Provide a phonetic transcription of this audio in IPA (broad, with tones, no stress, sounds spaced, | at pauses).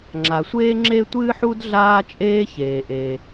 ŋ͡ǁ a˩ sʷ eː˥ ŋ͡ǁ e˥ tʷ ɨː˥ ħ u˥ d ɮ aː˥ t͡ʃʼ eː˥ ç eː˩ ʔ e˩